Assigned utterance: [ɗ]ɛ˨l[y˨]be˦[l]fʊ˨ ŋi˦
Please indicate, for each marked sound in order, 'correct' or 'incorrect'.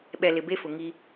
incorrect: ɓ, incorrect: ɪ˨, incorrect: none

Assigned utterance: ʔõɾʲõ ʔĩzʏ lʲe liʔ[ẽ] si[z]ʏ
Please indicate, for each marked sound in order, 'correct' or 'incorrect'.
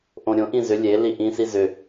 incorrect: ĩ, correct

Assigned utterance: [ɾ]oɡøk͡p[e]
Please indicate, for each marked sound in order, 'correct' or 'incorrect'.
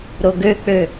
correct, incorrect: ø

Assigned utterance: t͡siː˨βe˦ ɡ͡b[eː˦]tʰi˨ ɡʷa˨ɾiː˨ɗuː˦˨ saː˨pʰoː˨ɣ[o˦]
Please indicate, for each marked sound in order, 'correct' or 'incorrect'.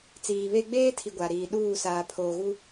correct, incorrect: u˦

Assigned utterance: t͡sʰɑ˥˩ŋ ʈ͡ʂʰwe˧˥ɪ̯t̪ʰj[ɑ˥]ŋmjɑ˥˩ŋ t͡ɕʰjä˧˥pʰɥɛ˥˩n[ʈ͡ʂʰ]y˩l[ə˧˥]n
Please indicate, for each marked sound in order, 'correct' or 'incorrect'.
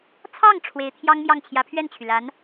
correct, incorrect: t͡ɕʰ, incorrect: a˧˥

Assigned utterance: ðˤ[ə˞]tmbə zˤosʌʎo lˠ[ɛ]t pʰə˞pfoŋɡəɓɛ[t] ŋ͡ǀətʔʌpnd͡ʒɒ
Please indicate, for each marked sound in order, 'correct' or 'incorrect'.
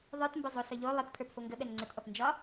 correct, incorrect: ə, incorrect: n

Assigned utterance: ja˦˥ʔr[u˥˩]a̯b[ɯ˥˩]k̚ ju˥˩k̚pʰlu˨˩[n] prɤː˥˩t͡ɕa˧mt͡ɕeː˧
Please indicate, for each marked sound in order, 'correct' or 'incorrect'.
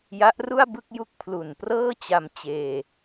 correct, correct, correct

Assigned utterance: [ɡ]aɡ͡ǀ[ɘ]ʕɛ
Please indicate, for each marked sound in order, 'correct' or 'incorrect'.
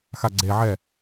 incorrect: x, incorrect: e

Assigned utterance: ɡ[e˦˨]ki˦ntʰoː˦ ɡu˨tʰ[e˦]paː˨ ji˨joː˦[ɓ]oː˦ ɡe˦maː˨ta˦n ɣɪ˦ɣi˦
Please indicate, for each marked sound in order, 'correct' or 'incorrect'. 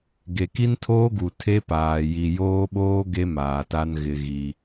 incorrect: e˨, correct, correct

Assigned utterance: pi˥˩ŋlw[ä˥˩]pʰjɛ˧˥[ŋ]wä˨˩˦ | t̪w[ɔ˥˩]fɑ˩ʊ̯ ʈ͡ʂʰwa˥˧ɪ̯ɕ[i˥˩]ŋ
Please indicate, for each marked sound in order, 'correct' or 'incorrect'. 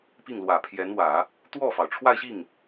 incorrect: ä˨˩, incorrect: n, correct, correct

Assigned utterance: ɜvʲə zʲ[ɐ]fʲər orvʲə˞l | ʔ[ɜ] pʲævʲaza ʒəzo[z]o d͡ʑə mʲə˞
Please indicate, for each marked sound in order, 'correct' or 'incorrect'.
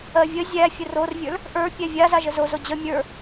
incorrect: æ, incorrect: ə˞, correct

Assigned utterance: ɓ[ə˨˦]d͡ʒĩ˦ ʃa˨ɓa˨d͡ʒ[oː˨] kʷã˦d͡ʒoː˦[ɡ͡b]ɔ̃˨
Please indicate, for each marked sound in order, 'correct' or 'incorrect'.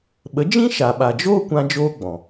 correct, incorrect: oː˦, correct

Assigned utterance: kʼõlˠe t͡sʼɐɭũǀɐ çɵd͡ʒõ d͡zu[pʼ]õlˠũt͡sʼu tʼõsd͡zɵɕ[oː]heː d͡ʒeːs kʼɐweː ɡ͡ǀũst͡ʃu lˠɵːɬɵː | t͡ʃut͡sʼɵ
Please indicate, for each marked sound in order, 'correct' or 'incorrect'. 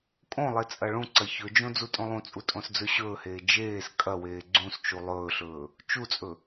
incorrect: tʼ, incorrect: ɵː

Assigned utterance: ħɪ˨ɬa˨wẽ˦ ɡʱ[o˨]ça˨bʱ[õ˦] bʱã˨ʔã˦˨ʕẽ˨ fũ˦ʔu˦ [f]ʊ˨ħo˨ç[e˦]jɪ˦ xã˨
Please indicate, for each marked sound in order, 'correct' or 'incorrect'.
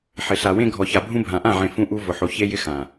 incorrect: ɔ˨, incorrect: ũ˦, incorrect: v, correct

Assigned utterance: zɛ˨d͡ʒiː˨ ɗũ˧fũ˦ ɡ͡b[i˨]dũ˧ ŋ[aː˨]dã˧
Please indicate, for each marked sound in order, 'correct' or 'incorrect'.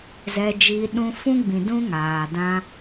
incorrect: ĩ˨, correct

